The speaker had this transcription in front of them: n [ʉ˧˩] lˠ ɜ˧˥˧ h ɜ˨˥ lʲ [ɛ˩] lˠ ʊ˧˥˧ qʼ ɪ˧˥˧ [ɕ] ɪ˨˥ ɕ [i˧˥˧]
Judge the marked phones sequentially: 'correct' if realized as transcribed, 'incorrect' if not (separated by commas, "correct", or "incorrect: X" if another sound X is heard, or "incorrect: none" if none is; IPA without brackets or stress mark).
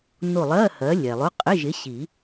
incorrect: ʊ˧˩, correct, incorrect: ʒ, incorrect: i˨˩˦